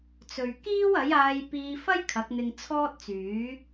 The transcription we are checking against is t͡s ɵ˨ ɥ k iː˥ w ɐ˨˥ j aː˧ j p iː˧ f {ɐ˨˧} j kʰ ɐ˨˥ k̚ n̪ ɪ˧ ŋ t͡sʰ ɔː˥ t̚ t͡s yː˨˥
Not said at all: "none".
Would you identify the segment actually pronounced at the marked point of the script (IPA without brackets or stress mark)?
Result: ɐ˥